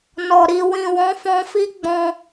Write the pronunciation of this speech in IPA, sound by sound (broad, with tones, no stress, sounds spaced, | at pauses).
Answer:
n ɔ˨ ɾ i˨ w ĩ˨ w ɔ̃˨˦ f ɔ̃˧ f i˦ ɡ͡b ɔ̃˧